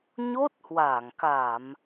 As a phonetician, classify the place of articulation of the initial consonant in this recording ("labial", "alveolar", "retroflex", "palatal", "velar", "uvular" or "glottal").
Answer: palatal